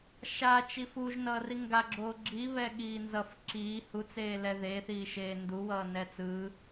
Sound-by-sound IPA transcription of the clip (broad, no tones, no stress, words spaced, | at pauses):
ʃat͡ʃi fuʒnʌːri ŋɡaɡ͡ǁoː ɡ͡ǁi βɛɠiːnzʌf ǁiː hut͡seːlɛ ðeθiːʃeː nduwʌː nɛt͡sɯː